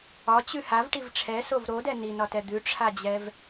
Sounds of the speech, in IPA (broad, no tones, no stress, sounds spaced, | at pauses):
ɒ t͡ɕ ʉ h a v ʈ i v ʈ͡ʂʰ ɛ s o v ɾ o d ɛ n i n ɒ t ɛ d̪ ʉ ʈ͡ʂʰ a d͡ʑ ɛ v